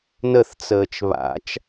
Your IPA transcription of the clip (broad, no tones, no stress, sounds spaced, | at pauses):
n ə θ t͡s əː t͡ʃ β a̰ t͡ʃ